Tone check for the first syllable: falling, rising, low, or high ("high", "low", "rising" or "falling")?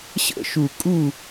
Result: falling